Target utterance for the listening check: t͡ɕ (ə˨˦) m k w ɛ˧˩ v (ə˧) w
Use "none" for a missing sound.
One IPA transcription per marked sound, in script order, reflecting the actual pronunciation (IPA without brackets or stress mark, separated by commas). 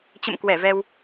ə̰˧˨, ɛ˧